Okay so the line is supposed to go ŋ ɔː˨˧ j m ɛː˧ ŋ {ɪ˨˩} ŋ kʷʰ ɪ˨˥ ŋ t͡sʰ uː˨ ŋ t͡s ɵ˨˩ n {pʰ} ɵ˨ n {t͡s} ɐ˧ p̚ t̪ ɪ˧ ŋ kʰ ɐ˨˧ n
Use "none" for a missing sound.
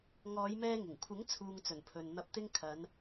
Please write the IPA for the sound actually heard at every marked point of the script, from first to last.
ɪ˨˩, pʰ, n̪

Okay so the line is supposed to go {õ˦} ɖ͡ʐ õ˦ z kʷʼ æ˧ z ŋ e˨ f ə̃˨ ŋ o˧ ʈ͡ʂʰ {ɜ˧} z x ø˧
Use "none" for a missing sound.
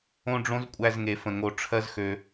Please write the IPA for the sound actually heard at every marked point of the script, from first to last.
õ˦, ɜ˦

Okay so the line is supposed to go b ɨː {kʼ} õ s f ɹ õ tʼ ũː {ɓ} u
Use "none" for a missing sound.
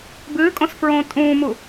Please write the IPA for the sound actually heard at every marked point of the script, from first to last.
kʼ, m

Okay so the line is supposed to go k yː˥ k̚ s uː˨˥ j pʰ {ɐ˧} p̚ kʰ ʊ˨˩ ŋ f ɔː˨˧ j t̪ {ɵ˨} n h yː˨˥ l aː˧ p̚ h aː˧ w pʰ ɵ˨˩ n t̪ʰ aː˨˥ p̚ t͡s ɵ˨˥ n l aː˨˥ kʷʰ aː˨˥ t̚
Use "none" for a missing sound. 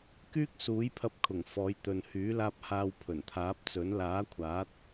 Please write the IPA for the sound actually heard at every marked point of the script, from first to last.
ɐ˧, ɵ˨

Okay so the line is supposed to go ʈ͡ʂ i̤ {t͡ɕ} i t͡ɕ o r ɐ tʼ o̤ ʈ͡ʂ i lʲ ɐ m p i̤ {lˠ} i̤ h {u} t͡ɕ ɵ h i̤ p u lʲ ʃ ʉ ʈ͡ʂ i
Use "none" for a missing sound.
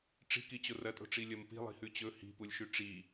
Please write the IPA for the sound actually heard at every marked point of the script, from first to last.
k, lˠ, ʉ

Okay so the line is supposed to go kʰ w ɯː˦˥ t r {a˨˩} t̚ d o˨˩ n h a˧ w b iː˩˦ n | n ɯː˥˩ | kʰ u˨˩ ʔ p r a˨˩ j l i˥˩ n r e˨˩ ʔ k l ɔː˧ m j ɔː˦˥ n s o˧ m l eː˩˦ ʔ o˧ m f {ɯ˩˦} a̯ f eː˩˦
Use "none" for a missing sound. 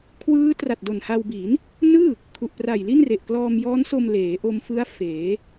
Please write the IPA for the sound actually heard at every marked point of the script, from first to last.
a˨˩, ɯ˦˥

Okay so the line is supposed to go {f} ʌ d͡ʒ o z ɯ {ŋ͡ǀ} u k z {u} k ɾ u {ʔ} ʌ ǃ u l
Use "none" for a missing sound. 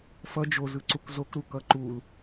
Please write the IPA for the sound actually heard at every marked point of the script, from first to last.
f, ǀ, o, k

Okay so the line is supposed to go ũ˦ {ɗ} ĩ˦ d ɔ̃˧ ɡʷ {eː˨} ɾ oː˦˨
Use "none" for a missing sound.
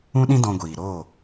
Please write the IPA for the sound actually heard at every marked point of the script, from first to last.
ɗ, iː˨

